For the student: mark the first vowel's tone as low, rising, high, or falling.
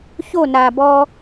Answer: falling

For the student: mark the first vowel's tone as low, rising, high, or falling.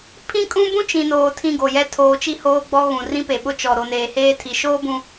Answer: high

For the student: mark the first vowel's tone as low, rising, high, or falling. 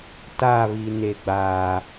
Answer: falling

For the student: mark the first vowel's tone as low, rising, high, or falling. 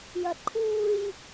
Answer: low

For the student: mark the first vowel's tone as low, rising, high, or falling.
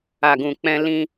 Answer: low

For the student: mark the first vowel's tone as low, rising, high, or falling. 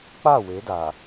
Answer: falling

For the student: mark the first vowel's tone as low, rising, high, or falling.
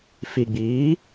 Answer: low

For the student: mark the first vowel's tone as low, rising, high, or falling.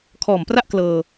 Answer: low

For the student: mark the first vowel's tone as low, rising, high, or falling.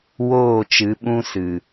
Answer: falling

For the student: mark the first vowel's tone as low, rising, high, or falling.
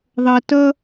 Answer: low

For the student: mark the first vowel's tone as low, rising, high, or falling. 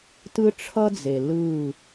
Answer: high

